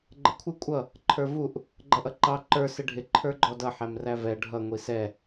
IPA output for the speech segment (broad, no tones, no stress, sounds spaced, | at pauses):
ɡ͡ǃ ə kʷʰ ɪ kʷʼ ʌ | ǃʰ ə˞ v u ʔ | ɡ͡ǃ ʌ ʔ ʌ ǃ ɑ ǃ ə˞ s ɪ ɖʱ ɪ ǃʰ ə˞ ɡ͡ǃ ɔ d ʌ ħ æ m r æ v ɛ ɖʱ ʌ ŋʷ i s ɛ